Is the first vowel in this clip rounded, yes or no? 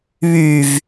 yes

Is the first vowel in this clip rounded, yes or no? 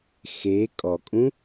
no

